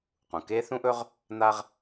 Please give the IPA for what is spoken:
q ũ˩ k e˥ θ ũ˥ ʔ ɵ˥ ʁ | n̪ a˥ ʁ

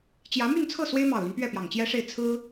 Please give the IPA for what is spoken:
t͡ɕ j ä˧˥ m y˥˧ n t͡sʰ ɤ˥˩ s w e˥ ɪ̯ m ɑ˨˩ ʊ̯ l y˦ n p ɥ ɛ˥˩ p j ɑ˨˩ ŋ t͡ɕ j ɛ˥ ʂ e˥˩ ɪ̯ t͡sʰ ɹ̩˥

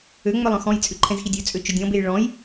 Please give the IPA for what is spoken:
ø ŋ͡m œ lˠ œ̃ x ɔ̃ j t͡sʼ ʉ ǃʰ ɛ̃ z x i dʲ ɵ t͡sʼ ø t͡ʃ ɵ dʲ ɔ̃ b e j ɭ ɔ̃ j

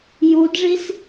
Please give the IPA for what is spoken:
j u d ʐ i s

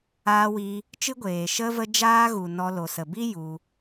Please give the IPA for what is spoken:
aː˧ w iː˧ | t͡ʃ ɨ˦ ɡʷ eː˨ ʃ ə˧ v ə˧ d͡ʒ aː˦ ɣ u˨ n ɔ˧ l o˨ s ə˨ b i˦ j u˧

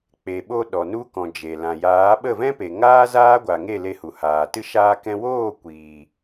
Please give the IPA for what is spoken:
k͡p e˨ ɓ o˧ ɗ ɔ˨ n u˧ k ɔ̃˨ d͡ʒ e˨ l ã˨ j aː˨˦ ɓ ə˦˨ v ɛ̃˦ p e˨ ŋ aː˦ z aː˦ ɡʷ a˨ ŋ e˦˨ l e˧ h u˨ h aː˨ t ɨ˦ ʃ aː˧ k ɛ̃˧ w oː˦˨ kʷ iː˨

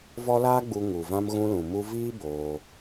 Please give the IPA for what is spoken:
v ɔ˦ l aː˦ ɡ͡b u˧ ŋ u˨ v ã˧ m ɣ ũ˧ l ũ˨ m u˧ v iː˦ b oː˧

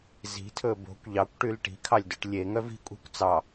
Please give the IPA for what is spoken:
z i̤ tʰ ɵ b o̤ kʷ ʎ ɑ kʷ ʈ y l ʈ i̤ kʰ ɑ lʲ d ø ʈ lʲ e ŋ œ v i̤ kʷʼ e̤ kʷ t͡s ɑ

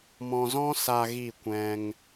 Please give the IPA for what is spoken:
m ɔ̃˧ z ɔ̃˦ s aː˧ ɣ i˦˨ kʷ ɛ̃˦ ŋ

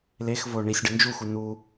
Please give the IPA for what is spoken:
l e x v o ɳ i sʲ ɖ ɨ n d͡ʒ u x u n u

